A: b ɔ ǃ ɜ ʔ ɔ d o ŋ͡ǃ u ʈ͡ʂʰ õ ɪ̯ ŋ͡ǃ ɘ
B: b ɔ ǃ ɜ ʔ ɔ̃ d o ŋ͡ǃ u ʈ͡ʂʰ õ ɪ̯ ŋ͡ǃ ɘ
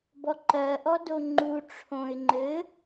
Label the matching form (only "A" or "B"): A